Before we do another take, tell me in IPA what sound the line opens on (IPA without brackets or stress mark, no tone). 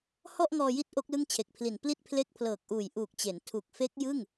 h